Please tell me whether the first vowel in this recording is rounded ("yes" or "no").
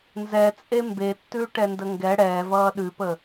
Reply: no